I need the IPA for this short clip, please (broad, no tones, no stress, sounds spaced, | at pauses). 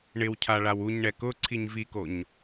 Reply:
ɳ ɪ w cʰ a ɭ a w u ɲ ɳ ɛ k ʊ ǀʰ i ɲ v i k o ɲ